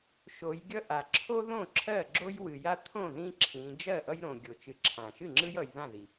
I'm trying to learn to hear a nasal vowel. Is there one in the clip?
yes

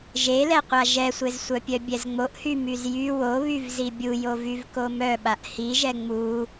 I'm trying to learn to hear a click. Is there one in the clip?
no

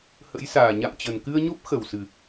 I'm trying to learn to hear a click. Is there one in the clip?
no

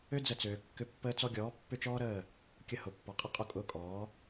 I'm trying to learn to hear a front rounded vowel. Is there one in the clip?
yes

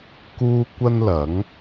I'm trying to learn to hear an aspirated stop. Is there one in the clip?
no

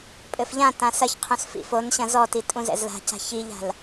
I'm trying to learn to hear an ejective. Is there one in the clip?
yes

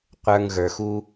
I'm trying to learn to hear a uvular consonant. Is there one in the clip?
yes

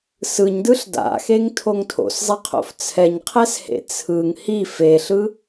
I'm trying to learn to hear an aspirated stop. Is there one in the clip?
yes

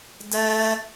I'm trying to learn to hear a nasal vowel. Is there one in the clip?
no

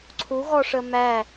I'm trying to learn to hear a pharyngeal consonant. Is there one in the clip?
no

